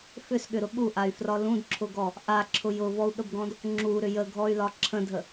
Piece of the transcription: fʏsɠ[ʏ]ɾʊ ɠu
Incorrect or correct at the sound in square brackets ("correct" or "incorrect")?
correct